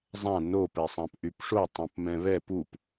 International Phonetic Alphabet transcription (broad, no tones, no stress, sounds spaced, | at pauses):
zˤ ã n o p ɛ sˤ ã p ʔ y p ʂ o tˤ õ p m ɛ̃ β ɛ p u p